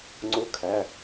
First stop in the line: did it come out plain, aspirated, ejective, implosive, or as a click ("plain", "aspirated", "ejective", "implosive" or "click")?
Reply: click